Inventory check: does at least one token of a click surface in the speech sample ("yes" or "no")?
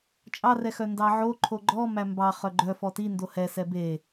yes